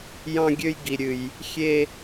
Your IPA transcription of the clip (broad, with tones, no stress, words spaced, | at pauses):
jɑ̃˦ɡʲø˦jɡi˨ ɾʲɨ˨j | xʲe˦